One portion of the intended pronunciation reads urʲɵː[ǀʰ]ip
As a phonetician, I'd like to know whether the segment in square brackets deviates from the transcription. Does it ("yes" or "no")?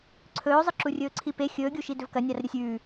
no